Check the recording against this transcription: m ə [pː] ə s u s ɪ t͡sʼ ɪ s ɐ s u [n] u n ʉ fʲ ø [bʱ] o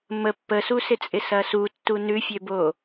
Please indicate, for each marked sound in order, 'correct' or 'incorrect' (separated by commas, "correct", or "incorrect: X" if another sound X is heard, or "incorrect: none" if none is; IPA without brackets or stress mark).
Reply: correct, incorrect: tː, incorrect: b